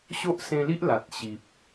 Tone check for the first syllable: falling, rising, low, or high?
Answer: high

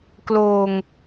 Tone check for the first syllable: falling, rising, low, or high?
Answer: low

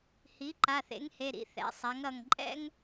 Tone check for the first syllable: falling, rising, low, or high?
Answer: rising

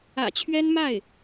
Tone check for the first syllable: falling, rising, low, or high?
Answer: low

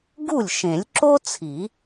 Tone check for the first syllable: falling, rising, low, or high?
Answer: falling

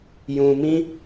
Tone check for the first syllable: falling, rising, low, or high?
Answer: low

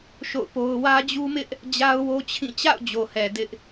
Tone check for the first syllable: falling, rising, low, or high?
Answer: falling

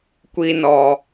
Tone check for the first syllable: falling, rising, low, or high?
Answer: high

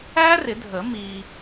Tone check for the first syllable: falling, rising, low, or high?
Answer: high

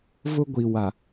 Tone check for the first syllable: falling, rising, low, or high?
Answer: high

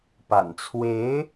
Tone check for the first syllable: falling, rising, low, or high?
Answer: low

